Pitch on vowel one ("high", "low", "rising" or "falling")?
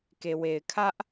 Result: low